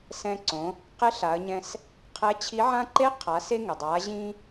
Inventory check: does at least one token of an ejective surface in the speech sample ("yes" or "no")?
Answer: no